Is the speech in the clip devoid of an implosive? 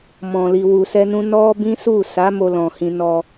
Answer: yes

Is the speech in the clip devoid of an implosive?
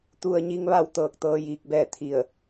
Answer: yes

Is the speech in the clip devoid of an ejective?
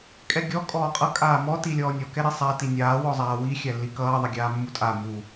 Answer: no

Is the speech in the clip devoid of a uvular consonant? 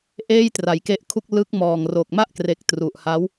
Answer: yes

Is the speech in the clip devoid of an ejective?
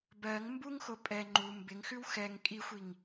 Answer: no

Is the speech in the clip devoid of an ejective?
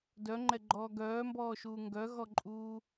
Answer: no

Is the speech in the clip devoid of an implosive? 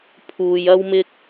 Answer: yes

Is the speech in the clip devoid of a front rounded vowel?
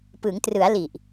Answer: yes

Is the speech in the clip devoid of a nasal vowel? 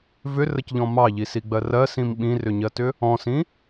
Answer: no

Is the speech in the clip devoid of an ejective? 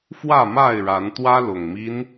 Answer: yes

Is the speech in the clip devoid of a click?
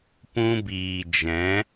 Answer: yes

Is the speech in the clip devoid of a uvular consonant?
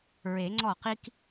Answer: no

